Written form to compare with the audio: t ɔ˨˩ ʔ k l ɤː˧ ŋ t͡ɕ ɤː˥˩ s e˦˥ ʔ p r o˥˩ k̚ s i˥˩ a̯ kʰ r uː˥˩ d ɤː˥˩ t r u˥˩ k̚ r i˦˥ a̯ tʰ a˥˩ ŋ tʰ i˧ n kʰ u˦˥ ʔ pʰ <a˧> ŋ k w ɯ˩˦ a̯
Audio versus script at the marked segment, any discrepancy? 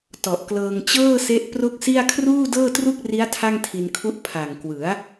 yes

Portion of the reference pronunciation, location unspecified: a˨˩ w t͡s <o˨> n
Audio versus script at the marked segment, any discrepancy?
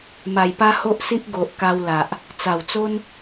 yes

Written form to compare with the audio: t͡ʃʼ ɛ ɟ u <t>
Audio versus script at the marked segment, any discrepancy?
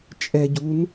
yes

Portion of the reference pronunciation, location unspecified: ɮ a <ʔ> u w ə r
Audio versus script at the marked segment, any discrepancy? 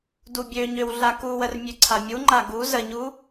yes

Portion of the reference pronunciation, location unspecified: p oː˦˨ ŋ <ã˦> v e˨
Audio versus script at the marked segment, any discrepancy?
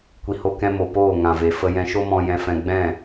yes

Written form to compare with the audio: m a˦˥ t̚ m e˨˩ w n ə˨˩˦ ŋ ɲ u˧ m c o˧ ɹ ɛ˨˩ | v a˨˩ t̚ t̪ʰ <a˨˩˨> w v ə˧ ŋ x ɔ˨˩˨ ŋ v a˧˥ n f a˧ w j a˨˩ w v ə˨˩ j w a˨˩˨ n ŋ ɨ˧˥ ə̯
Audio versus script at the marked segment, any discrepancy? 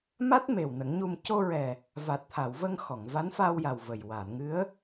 no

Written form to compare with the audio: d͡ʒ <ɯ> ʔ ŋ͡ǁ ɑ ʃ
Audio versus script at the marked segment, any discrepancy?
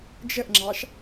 yes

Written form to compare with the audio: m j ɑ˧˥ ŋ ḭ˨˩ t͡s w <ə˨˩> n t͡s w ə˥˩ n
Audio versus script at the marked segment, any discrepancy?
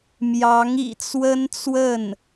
yes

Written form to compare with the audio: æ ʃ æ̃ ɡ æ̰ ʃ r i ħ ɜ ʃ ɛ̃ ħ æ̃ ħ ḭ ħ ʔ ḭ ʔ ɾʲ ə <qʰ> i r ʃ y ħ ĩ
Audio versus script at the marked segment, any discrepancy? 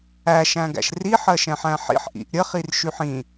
yes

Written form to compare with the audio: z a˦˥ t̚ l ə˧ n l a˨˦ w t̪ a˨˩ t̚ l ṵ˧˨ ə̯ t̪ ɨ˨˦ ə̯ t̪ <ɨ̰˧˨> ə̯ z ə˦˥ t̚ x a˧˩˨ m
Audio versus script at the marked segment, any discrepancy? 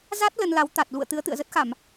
no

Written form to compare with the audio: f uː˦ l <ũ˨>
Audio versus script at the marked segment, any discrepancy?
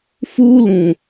no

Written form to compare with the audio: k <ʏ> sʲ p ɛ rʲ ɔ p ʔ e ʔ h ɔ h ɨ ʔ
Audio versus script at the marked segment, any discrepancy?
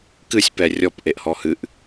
yes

